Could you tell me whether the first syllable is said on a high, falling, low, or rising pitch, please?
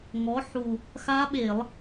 rising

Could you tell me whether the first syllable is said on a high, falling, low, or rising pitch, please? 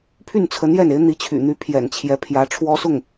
falling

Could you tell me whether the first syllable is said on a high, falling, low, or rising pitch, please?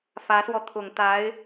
rising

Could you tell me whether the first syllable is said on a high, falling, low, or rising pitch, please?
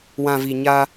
low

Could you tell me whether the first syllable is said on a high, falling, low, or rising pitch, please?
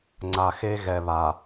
low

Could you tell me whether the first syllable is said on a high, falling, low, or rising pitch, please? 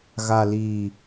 low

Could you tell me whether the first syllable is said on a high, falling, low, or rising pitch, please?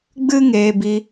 high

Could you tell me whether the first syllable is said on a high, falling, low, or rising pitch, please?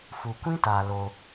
low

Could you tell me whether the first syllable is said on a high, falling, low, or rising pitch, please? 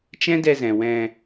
high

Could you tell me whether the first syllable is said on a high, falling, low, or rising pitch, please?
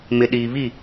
low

